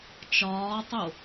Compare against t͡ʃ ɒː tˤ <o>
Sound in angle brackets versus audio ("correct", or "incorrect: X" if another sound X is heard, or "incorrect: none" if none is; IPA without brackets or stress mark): correct